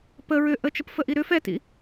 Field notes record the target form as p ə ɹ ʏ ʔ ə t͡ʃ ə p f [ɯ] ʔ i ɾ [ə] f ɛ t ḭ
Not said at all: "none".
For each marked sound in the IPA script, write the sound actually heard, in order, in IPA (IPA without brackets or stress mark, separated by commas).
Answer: ə, ʏ